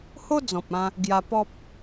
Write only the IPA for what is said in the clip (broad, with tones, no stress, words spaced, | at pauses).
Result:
ho˦d͡zɔ̃˨p̚ ã˧ | ɡja˧pɔ˦p̚